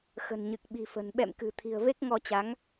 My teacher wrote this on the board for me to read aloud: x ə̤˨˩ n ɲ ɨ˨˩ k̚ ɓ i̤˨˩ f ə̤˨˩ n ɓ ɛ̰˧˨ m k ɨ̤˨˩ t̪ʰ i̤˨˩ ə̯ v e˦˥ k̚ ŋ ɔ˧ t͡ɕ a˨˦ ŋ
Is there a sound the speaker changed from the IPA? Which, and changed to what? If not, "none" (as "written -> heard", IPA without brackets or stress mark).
none